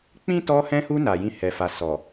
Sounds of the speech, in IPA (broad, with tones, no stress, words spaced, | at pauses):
k͡pĩ˦ tɔ˧hɛ̃˧hu˧ na˨jĩ˧hɛ˨fa˨ sɔ˨